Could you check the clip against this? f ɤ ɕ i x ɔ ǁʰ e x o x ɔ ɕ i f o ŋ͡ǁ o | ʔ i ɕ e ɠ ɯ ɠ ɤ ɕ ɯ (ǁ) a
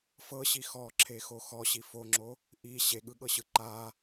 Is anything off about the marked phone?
yes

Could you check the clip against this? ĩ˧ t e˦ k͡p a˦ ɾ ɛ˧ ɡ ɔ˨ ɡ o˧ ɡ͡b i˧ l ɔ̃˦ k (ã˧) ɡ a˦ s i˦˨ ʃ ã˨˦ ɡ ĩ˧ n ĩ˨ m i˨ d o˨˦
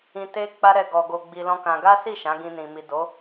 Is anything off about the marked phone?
no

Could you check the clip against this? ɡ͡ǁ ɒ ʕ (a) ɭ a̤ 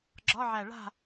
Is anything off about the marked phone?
yes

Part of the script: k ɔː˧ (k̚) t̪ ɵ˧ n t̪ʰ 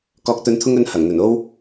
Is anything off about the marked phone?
no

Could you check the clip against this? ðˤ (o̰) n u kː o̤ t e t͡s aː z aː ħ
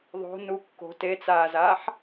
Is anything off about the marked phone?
yes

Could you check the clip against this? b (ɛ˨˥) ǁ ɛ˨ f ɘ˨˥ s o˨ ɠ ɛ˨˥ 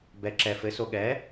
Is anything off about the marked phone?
no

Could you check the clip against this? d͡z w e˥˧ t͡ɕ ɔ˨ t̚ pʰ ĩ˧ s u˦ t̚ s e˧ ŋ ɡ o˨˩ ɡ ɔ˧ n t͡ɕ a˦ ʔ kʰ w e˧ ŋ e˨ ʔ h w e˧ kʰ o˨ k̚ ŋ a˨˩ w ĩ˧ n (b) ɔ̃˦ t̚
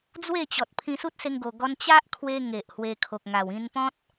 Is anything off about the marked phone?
yes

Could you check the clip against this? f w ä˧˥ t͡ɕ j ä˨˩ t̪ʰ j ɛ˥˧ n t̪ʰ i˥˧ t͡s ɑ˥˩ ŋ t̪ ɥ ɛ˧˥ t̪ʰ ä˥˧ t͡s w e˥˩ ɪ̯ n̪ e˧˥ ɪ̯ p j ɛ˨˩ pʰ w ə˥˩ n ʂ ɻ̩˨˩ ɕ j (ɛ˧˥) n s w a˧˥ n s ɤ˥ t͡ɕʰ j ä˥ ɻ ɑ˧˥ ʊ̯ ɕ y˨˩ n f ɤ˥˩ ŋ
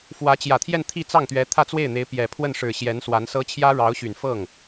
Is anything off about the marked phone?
no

